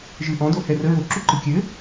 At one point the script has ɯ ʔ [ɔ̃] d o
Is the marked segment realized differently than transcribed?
no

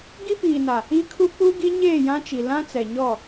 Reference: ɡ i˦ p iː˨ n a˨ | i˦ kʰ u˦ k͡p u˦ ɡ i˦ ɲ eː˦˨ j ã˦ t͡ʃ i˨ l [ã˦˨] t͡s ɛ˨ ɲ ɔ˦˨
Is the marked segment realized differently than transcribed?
yes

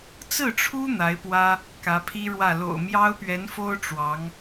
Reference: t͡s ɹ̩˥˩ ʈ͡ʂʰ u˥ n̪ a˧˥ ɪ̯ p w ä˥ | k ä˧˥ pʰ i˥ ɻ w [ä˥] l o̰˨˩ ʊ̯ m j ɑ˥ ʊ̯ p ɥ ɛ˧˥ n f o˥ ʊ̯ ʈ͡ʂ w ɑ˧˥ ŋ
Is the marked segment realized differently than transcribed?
yes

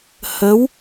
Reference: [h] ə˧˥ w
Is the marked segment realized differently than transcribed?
no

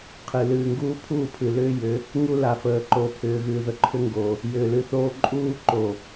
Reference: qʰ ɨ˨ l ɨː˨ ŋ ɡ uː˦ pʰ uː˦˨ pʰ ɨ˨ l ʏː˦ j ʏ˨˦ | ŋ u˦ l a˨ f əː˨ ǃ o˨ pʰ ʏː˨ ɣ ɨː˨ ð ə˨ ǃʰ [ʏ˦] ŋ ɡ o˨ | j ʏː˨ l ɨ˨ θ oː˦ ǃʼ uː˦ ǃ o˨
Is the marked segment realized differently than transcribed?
no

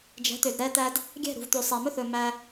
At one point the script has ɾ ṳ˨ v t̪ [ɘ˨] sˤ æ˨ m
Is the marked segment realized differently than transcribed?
yes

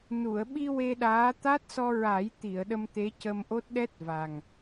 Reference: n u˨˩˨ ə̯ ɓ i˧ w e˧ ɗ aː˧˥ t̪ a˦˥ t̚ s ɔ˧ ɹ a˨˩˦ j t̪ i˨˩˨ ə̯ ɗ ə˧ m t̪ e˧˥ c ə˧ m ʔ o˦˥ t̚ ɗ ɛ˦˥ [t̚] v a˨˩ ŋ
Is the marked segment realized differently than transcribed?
no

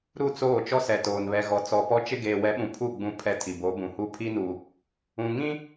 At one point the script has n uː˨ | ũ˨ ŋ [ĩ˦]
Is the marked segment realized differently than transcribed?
no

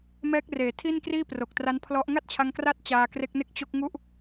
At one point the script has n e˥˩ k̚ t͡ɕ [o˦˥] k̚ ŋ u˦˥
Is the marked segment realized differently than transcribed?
no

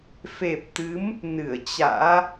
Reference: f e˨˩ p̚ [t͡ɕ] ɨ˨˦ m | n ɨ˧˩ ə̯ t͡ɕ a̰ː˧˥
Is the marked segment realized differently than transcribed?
yes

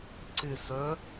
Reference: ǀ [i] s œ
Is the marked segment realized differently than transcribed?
yes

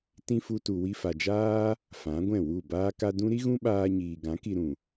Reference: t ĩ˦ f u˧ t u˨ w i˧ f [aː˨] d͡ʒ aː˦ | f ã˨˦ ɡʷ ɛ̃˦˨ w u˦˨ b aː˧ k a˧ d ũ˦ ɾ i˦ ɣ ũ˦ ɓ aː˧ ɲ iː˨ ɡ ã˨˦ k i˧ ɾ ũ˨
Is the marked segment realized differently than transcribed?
yes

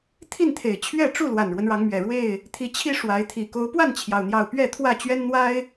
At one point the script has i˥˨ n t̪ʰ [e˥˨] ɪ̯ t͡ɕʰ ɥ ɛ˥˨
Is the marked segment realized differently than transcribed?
yes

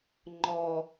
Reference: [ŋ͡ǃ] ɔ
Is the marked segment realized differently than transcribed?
no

